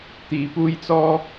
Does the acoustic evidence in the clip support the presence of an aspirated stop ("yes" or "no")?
no